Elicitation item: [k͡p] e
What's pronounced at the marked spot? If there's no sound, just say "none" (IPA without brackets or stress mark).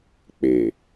k͡p